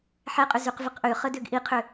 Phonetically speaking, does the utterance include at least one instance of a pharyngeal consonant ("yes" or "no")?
yes